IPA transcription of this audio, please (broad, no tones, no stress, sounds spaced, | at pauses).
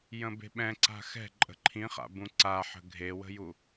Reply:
j ə̃ b e̤ ɓ ɛ̃ ǀ a̤ x ɛ̤ ǃʼ ə̤ ǃʰ ĩ χ a̰ b ũ ǀ a ħ ə̤ ɡʱ e w ə̤ j u